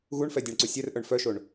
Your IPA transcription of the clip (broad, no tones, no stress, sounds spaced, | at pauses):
ɣ u ɳ f ɛ dʲ ɛ ɳ ǀ u sʲ ɛ r ʔ œ ɳ f œ ʃ o ɳ